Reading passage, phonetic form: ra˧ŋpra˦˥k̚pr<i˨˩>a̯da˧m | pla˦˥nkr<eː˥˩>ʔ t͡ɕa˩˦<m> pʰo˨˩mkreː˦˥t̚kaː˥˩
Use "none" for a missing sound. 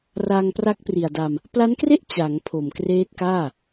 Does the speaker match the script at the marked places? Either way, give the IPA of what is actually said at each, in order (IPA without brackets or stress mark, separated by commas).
i˨˩, e˥˩, ŋ